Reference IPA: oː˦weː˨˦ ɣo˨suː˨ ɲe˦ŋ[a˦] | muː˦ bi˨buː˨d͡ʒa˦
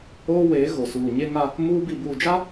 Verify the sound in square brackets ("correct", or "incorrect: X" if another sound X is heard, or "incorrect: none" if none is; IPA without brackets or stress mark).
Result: correct